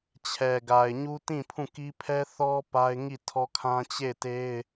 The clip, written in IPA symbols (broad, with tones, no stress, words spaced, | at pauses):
t͡ɕʰɛ˨ɡa˨ɪ̯ ɲu˦tĩ˦˨pʰũ˦˨ ki˦ pʰɛ˦θɔ˦ pa˦ɪ̯ŋi˦˨tʰɔ˦kʰã˦ t͡ɕe˦˨ɪ̯te˦ɪ̯